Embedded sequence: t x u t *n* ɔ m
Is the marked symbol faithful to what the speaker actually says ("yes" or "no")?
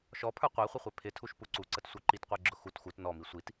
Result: yes